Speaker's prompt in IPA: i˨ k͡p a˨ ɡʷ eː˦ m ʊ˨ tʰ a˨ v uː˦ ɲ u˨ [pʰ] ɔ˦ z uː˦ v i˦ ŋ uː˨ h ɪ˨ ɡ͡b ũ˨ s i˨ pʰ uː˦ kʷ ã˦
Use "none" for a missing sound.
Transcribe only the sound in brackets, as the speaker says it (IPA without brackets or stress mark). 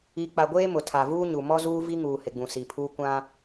m